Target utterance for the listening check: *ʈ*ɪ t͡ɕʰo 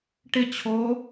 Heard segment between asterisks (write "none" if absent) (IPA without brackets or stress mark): ʈ